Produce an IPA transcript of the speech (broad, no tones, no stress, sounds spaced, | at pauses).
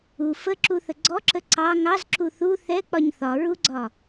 u f ə ǁ u θ ə ɡ͡ǀ ɔ ǁ ə ǀ ɑ ŋ ɑ z ǁ u θ u θ ɛ k͡p ɒ ɲ θ ɒ ɹ u ɡ͡ǀ ɒ